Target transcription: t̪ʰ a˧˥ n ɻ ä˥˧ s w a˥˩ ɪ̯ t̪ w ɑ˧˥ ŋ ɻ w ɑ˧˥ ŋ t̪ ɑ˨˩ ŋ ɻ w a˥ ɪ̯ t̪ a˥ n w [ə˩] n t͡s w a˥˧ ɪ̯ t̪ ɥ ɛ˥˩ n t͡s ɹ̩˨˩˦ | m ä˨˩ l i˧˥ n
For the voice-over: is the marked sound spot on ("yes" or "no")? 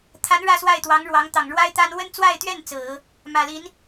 no